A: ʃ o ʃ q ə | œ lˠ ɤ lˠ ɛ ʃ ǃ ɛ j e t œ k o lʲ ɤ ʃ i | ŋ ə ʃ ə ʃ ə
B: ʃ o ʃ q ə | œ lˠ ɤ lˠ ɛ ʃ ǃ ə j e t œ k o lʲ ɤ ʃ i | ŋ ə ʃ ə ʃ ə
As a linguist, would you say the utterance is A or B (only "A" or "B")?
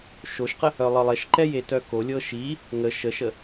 A